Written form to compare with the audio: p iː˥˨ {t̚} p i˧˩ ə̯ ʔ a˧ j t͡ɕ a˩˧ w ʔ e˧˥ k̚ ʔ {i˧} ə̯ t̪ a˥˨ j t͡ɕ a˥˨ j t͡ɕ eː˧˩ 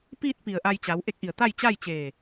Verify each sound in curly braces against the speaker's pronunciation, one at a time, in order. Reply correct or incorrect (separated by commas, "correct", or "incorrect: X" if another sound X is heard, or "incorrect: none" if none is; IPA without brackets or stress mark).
correct, incorrect: i˧˩